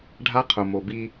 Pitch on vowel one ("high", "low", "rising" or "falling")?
high